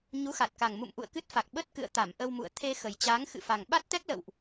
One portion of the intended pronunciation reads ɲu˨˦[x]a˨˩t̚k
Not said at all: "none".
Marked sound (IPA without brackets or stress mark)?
x